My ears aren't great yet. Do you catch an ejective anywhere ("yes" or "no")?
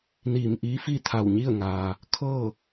no